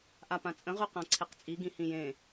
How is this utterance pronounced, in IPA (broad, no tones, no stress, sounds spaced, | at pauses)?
ʔ a p ã t͡sʼ ə̃ ʁ ʉ q ã ǀʰ e q t͡sʼ i ɡ ĩ h ĩ j ẽ